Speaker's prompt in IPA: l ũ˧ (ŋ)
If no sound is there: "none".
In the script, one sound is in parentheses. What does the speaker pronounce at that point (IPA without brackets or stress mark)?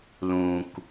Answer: k